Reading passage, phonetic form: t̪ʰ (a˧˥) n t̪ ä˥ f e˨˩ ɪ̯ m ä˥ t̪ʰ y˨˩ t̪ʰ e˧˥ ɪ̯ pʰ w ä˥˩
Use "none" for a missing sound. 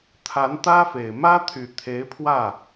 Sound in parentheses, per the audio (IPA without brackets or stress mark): a˧˥